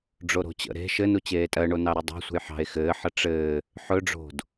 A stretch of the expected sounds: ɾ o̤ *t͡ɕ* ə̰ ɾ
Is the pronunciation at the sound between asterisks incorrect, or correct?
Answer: correct